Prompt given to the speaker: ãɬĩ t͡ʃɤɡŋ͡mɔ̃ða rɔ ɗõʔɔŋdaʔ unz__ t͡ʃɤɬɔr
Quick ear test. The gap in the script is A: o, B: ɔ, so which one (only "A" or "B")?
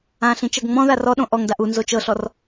A